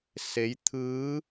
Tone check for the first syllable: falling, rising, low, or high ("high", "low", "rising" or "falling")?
rising